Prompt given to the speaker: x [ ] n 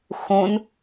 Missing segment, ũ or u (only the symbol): ũ